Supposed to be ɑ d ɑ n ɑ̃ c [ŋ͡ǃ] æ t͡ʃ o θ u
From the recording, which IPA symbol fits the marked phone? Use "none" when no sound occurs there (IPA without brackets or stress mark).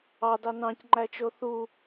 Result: ŋ͡ǃ